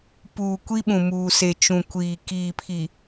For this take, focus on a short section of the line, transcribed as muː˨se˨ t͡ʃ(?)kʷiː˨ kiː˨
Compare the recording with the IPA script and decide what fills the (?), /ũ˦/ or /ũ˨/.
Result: ũ˨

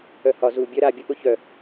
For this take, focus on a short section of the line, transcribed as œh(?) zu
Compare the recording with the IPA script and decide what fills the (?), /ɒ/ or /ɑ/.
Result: ɒ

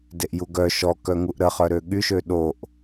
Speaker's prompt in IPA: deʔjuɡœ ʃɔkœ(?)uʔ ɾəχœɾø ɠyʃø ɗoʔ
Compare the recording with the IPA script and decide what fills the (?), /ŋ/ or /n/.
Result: ŋ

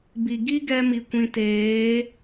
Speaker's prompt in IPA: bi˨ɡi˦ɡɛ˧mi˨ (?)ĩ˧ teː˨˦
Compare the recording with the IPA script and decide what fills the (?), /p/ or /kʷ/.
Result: kʷ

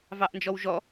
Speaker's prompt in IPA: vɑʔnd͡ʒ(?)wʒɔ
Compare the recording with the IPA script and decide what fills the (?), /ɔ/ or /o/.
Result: ɔ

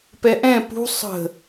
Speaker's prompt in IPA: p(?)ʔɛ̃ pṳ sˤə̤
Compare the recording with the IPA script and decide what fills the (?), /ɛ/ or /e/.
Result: ɛ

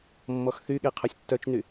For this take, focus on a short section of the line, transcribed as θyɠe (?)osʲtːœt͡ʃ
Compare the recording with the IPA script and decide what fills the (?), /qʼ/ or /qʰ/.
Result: qʰ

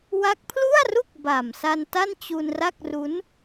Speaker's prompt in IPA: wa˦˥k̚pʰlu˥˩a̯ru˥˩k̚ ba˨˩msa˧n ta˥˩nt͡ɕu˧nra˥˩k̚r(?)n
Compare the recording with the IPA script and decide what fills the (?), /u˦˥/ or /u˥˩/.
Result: u˦˥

